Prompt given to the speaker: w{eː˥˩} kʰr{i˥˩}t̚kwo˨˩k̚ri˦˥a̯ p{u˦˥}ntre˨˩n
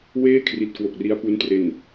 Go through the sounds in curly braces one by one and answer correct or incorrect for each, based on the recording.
correct, incorrect: i˨˩, correct

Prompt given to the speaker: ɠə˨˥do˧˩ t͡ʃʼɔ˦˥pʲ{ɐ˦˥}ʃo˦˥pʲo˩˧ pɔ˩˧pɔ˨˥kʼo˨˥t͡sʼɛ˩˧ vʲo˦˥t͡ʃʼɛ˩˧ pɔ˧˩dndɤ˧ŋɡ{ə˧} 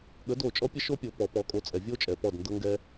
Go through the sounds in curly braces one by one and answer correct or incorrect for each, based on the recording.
incorrect: ə˦˥, incorrect: ɛ˧

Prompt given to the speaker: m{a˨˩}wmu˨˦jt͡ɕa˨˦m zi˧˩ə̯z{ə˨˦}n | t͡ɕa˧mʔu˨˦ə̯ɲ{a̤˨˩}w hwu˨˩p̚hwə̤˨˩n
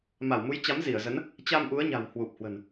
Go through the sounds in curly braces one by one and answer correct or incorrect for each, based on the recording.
incorrect: a˧˩, correct, correct

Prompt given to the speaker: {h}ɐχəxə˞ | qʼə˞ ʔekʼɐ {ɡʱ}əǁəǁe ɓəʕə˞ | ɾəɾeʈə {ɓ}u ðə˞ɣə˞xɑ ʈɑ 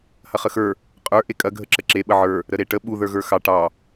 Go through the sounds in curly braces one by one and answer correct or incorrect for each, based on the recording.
correct, correct, correct

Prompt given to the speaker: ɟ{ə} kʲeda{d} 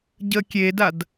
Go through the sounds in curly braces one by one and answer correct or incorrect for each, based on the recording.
correct, correct

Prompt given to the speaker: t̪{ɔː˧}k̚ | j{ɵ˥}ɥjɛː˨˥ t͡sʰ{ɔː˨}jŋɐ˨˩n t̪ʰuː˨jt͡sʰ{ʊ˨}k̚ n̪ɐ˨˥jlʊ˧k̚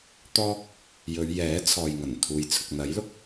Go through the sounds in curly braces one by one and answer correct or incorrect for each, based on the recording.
incorrect: ɔː˥, incorrect: ɵ˨˧, correct, correct

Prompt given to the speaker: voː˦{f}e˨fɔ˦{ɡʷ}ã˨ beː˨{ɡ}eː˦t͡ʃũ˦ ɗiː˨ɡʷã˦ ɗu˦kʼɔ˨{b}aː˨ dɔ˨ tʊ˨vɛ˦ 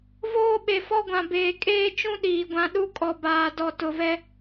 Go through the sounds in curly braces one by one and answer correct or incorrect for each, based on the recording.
incorrect: ɓ, correct, incorrect: kʼ, correct

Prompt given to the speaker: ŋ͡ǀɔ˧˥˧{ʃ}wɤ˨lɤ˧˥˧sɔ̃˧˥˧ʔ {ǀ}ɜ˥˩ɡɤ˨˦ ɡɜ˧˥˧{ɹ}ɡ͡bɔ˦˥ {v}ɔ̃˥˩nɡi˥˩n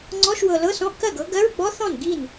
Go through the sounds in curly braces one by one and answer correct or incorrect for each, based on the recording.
correct, incorrect: k, correct, incorrect: θ

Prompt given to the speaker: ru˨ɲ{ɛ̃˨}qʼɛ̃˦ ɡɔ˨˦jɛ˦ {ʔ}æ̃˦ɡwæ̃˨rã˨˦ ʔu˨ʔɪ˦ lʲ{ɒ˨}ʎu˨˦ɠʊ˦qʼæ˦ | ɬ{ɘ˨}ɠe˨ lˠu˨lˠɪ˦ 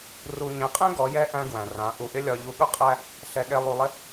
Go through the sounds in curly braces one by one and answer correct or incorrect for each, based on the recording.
correct, correct, correct, incorrect: ɛ˨

